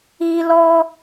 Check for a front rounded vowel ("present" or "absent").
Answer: absent